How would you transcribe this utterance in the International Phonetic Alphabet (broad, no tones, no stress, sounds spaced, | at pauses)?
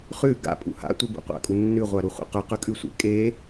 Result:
χ ʉ ɡ a̰ pʼ ṵ h a̰ tʷ e b ṵ qʷ a̰ kʼ u nː ʉ ʁʷ a ɾ u χʷ ḛ q ʉ q ʉ kʼ ʉ sʷ ḛ kʼ e